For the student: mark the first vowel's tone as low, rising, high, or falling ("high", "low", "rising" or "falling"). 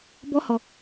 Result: high